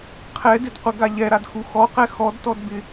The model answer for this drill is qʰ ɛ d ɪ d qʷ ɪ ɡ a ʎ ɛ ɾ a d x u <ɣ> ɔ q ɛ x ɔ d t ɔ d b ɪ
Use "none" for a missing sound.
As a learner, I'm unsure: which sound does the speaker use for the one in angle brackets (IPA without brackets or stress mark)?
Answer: x